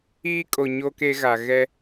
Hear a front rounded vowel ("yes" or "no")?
no